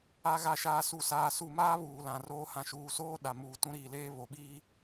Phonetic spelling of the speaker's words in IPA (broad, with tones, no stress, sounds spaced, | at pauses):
a˨ ɣ a˨ ʃ aː˨ s u˨ s aː˨ s u˨ m aː˦ β uː˨ l ã˨ r oː˦ h ã˨ ʃ uː˨ s oː˦ ɗ a˨ m uː˨ t ũ˦ ɾ iː˨ l eː˦ β o˨ ɓ iː˦